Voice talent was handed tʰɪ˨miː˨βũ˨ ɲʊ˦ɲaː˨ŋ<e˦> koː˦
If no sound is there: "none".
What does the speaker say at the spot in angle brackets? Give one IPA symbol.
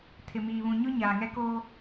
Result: ɛ˦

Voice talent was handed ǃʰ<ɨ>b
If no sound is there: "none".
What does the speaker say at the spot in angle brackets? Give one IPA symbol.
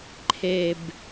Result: e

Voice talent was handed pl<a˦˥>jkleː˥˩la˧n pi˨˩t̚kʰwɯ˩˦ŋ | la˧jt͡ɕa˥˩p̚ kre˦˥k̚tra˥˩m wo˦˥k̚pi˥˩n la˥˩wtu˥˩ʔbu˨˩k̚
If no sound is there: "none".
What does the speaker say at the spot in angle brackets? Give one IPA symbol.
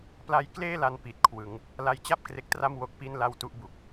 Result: a˦˥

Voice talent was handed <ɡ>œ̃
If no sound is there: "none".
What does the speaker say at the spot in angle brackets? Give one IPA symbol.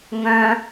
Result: ŋ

